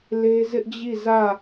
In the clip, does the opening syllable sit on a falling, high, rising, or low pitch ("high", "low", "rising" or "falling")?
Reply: high